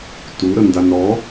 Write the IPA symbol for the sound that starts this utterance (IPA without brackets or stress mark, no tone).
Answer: t